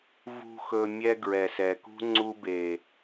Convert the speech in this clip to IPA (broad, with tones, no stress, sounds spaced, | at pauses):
v ṳ˨ x ɵ˨ mʲ ɛ˧ ɡ ɹ ɛ˨ s ɛ˨ k ṳ˦ ŋ͡ǀ u˧ b e˨